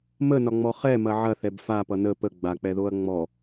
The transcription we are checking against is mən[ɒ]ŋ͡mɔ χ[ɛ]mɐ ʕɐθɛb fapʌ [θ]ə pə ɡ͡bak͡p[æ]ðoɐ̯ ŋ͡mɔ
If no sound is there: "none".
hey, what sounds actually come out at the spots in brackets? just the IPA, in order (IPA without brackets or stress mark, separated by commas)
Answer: ɒ, ɛ, n, ɛ